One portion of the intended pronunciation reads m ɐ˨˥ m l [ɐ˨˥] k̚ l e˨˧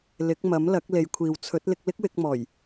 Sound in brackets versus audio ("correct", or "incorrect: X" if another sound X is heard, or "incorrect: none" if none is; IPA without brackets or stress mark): correct